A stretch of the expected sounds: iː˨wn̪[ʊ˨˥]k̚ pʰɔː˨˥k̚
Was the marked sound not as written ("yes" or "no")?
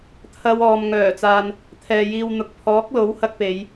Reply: yes